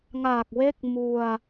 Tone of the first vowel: low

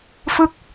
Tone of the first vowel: falling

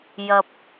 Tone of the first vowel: low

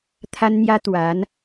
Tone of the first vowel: high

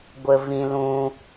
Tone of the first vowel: high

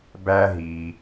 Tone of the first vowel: high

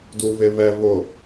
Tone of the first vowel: low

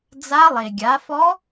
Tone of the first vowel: rising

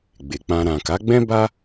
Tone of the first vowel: low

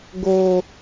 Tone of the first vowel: low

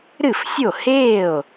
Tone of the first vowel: falling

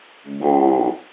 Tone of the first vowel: low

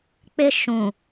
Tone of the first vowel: high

